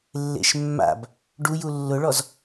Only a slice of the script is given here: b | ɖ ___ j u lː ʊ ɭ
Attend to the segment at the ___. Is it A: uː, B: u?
B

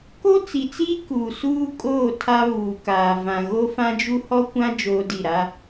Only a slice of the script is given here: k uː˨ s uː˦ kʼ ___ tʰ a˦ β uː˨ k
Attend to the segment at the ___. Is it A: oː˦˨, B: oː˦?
A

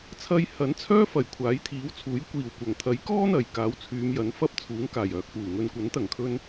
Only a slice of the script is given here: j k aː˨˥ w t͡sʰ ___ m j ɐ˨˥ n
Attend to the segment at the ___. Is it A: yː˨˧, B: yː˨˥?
A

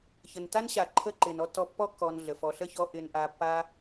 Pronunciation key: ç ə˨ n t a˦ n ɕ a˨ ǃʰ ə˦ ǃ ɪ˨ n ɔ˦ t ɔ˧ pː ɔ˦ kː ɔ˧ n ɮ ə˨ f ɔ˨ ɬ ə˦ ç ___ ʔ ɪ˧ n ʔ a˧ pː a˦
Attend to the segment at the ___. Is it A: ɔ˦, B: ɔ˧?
B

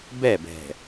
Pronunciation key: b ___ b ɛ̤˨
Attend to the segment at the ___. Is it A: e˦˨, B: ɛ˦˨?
B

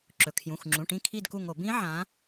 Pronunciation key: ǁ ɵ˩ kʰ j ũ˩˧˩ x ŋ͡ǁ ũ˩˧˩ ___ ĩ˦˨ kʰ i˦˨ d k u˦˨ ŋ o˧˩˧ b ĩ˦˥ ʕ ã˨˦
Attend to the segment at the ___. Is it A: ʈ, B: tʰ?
A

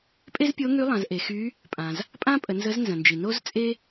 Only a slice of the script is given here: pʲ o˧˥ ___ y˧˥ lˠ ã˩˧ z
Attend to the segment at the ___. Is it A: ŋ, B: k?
A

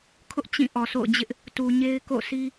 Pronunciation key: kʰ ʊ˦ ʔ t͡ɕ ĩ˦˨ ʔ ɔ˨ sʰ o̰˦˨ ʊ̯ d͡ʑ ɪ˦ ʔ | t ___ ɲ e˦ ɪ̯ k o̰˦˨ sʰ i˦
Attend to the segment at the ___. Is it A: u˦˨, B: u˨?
B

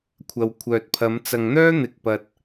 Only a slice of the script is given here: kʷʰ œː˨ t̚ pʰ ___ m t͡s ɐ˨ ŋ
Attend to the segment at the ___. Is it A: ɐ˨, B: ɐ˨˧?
B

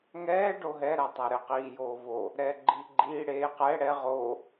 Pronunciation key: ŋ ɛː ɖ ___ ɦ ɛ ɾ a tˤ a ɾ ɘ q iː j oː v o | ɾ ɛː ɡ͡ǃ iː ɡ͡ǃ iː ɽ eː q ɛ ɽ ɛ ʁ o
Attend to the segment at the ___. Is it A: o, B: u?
A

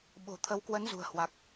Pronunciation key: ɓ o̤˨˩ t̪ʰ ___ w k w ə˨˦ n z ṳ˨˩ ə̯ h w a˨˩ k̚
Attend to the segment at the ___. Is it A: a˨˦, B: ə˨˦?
B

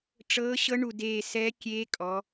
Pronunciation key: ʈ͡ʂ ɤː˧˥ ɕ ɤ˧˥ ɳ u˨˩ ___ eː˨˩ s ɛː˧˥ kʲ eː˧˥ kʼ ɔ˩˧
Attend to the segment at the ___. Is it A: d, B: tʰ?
A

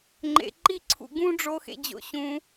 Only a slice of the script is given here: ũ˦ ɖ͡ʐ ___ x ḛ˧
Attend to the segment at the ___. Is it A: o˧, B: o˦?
A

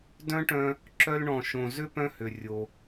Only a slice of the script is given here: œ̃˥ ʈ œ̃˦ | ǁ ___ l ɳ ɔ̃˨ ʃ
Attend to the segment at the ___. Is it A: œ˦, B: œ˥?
A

